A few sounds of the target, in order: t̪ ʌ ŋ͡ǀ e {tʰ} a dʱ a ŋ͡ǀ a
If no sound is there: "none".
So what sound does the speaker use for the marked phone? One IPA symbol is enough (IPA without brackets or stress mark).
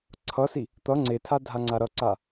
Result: tʰ